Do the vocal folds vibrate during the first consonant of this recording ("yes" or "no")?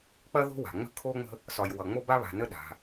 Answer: no